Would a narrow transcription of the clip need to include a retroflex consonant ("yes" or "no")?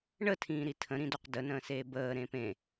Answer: yes